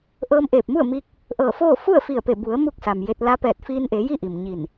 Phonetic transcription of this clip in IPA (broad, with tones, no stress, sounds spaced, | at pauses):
ʔ ɤː˧ m ʔ eː˧˩ p̚ m u˥˨ ə̯ m i˧ k̚ | ʔ ɤː˧˩ f oː˥˨ f u˥˨ ə̯ f i˧˩ ə̯ p e˧˩ b u˩˧ ə̯ m u˥˨ k̚ s a˩ m j e˧ t̚ l a˧˥ p ɛː˧˩ t̚ f iː˧ n ʔ e˩˧ j i˥˨ ʔ i˩ m ɲ i˧˩ n